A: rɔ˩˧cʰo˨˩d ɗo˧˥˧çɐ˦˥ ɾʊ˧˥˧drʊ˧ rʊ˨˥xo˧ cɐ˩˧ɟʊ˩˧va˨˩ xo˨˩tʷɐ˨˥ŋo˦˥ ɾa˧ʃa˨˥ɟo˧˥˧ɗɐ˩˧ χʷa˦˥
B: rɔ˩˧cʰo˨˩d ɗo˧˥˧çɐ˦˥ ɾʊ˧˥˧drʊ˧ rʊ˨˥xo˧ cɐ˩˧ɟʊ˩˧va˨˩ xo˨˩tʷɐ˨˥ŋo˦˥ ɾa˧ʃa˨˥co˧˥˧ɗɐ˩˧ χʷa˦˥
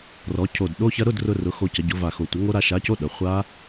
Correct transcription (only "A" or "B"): B